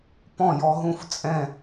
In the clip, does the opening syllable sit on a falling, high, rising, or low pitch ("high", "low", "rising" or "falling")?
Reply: falling